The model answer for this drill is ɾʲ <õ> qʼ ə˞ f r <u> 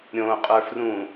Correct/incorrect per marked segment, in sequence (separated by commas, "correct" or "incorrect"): correct, incorrect